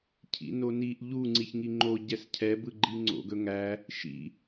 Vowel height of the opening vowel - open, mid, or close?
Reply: close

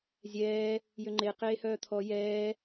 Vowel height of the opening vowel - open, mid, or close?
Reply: mid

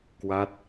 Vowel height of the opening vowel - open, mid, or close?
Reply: open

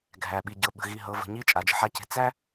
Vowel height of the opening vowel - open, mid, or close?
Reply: open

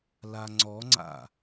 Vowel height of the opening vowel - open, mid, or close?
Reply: open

